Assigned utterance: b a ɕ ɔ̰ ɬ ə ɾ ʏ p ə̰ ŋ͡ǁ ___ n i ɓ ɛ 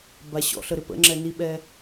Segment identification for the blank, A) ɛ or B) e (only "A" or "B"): A